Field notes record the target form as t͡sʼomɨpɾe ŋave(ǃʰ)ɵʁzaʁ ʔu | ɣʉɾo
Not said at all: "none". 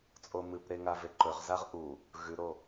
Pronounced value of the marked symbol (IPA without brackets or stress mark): ǃ